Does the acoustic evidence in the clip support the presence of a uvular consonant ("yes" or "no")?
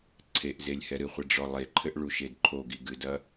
yes